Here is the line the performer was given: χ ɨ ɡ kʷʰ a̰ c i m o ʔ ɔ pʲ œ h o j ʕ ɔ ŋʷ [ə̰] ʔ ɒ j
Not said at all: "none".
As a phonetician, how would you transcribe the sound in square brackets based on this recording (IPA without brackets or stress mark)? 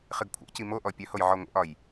ə̰